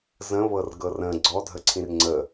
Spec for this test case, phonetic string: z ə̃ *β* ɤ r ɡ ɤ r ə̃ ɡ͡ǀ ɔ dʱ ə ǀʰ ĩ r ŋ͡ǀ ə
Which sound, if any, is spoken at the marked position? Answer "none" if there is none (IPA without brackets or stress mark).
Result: β